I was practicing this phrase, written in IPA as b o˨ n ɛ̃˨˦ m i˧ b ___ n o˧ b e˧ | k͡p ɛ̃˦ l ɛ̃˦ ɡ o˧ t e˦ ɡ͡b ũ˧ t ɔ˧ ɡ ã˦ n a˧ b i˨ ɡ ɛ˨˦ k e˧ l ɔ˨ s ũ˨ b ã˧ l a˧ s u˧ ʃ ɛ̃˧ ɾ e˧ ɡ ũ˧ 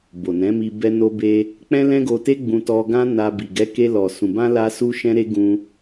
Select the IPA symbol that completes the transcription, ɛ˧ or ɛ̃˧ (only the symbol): ɛ˧